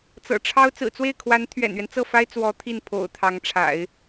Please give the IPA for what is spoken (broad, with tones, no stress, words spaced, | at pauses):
t͡sɤ̰˨˩ʈ͡ʂʰɑ˥ʊ̯ t͡sɹ̩˨˩t͡swe˥˩ɪ̯kʰwa˧˥n t̪ʰɥɛ̰˨˩nɥɛ˦n t͡sɤ˥˩fa˥ɪ̯ t͡swɔ˧˥ t̪ʰi˥˩npʰo̰˨˩ʊ̯ t̪ʰɑ˧˥ŋʈ͡ʂʰa̰˨˩˦ɪ̯